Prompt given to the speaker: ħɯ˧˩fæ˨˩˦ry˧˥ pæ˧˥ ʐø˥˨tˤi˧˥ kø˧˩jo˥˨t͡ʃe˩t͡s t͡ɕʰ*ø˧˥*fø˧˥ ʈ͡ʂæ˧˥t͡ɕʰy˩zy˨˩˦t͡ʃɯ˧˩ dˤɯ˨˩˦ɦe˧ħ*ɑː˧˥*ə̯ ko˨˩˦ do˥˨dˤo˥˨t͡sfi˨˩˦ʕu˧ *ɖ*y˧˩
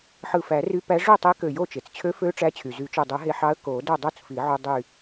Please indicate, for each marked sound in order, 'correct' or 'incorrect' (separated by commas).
correct, incorrect, incorrect